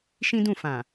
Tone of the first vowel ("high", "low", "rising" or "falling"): high